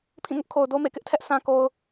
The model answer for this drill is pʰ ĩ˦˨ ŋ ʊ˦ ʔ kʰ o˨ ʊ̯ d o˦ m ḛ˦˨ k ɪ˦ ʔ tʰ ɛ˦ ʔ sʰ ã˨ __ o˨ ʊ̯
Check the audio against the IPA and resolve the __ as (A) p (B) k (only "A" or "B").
B